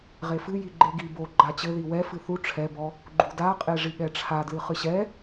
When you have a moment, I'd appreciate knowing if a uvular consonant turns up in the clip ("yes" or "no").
yes